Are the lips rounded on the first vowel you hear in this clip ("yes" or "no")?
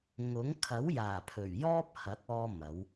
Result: yes